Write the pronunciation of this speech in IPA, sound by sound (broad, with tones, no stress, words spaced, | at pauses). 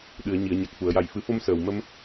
ɗɨ˨˩˨ə̯ ɲi˨˩˨ə̯ɲa˨˩k̚fu˨˩˨ə̯ja˨˩j fɨ˨˩˦fo˧m səː˨˩w mə˧m